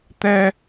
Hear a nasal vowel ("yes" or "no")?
no